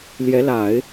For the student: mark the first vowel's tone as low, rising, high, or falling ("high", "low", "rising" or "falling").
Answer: rising